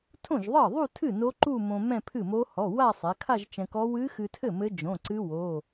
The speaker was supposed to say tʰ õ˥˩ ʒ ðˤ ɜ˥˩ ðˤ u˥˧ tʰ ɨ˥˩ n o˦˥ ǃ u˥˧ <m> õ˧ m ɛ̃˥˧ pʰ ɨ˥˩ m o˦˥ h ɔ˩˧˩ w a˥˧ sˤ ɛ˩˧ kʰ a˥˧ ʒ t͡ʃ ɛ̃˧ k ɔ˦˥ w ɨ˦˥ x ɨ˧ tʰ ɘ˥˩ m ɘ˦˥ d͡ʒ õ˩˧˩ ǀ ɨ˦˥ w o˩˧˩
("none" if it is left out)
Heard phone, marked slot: m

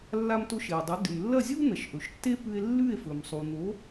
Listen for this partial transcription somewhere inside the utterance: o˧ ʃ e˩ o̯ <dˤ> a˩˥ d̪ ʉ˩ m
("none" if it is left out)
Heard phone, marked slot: dˤ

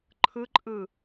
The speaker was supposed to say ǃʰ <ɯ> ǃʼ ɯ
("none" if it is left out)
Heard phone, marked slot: ɯ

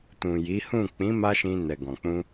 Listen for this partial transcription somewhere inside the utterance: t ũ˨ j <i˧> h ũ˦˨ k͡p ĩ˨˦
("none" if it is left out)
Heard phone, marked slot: i˨˦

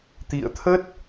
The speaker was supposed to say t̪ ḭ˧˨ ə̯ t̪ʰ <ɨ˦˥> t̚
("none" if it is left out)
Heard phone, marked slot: ə˦˥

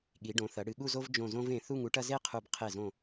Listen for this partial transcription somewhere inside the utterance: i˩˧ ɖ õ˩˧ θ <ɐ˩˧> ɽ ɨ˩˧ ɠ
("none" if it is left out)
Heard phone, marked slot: ɐ˩˧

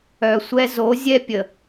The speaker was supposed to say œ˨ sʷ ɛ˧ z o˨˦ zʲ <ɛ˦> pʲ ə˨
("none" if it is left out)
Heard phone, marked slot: ɛ˦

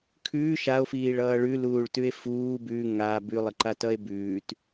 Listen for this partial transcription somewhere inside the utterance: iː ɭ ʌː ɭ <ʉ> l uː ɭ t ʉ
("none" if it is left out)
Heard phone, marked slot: ʉ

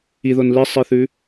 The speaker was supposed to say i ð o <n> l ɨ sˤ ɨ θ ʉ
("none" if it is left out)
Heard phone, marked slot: n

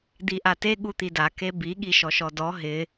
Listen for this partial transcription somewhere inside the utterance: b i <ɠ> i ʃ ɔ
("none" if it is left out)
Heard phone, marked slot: ɠ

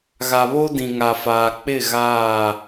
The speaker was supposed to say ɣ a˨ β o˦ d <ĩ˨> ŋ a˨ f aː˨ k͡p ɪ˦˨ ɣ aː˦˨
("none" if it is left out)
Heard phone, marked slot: ĩ˨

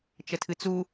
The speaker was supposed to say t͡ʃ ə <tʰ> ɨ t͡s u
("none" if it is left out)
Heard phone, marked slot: tʰ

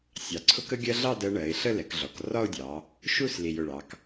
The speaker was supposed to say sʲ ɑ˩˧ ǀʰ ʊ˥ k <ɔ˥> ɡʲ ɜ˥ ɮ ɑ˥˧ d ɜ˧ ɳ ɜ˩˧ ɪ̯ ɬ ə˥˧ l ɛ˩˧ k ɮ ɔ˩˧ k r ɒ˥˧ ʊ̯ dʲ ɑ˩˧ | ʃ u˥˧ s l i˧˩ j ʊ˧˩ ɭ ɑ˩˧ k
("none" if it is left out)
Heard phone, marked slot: ə˥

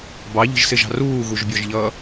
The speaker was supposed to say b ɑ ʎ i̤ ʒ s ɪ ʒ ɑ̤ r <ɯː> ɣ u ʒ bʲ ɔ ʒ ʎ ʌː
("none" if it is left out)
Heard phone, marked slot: uː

